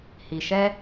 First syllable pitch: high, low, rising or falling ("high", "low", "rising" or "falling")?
low